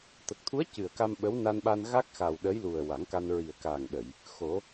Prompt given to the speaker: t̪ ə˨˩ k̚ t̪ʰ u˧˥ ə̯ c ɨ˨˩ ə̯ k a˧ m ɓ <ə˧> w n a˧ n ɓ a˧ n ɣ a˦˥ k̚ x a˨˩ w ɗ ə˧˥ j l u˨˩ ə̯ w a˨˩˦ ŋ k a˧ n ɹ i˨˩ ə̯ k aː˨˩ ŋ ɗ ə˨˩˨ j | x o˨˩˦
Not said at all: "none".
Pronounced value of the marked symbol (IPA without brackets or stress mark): ə˧˥